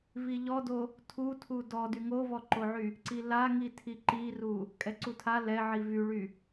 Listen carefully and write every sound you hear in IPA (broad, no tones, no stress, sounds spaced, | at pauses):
v i ʎ ɔ d o | tʰ u tʰ u d ɔ d y ŋ o v ɔ ǃ o ʕ y | ǀ i l a ŋ i tʰ i ǃ i r u | kʼ ɛ ǀ u tʰ a l ɛ ʕ i v y ɭ y